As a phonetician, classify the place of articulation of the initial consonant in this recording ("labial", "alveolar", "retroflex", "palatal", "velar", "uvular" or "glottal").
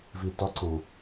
labial